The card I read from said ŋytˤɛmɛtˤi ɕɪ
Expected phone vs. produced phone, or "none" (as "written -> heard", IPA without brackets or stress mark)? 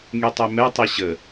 ɪ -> ə